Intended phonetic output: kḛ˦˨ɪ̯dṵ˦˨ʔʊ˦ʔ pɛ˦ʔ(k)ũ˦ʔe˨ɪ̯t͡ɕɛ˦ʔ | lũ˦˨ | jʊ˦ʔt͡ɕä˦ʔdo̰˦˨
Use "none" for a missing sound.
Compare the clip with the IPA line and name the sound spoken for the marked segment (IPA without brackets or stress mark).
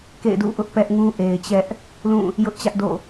ŋ